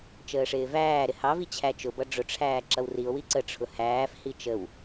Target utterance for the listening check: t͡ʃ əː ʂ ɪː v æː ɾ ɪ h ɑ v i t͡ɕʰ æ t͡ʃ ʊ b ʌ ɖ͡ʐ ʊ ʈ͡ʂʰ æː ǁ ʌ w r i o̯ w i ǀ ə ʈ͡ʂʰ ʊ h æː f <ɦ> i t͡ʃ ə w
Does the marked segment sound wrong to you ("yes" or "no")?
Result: yes